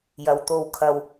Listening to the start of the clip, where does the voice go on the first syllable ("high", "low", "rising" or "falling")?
low